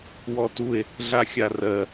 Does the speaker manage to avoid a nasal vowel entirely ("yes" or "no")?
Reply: yes